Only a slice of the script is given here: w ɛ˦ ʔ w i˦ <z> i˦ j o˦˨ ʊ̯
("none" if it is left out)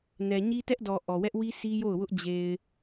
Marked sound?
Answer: s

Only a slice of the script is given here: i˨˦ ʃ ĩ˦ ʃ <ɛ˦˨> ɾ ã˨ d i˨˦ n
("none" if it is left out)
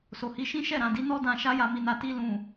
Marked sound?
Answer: ɛ˦˨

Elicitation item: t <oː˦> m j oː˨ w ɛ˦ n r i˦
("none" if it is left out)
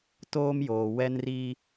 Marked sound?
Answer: oː˦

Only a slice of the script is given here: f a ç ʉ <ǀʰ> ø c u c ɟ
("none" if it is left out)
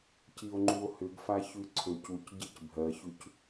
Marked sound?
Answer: ǀʰ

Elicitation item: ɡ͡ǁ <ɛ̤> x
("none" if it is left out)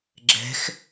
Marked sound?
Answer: ɛ̤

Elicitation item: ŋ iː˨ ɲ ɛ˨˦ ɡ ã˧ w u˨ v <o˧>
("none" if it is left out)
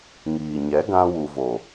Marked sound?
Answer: o˨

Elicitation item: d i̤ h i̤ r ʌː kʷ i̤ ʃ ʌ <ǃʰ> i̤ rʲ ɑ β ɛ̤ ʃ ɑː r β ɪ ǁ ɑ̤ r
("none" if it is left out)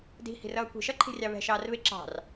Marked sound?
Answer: ǃʰ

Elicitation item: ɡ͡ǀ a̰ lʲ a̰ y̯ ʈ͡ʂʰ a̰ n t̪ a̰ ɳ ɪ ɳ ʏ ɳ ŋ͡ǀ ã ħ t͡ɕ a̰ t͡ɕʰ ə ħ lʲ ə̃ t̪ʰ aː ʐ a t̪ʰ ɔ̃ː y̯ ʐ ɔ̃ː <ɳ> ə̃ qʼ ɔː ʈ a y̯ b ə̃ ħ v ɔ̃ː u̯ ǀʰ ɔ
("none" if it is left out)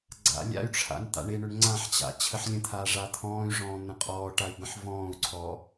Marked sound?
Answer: n̪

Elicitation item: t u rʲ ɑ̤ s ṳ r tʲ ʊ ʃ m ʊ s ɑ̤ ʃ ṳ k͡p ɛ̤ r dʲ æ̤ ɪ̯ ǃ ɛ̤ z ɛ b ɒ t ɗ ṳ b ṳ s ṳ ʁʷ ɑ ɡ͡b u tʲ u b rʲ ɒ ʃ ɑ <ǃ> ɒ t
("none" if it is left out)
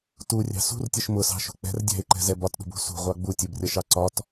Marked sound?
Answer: ǀ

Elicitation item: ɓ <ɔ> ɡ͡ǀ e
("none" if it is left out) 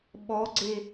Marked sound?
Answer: ɔ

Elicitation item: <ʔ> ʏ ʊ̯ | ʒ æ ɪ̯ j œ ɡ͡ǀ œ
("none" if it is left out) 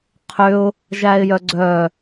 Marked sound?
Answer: qʰ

